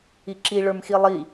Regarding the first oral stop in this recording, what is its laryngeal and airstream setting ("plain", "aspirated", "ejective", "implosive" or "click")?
click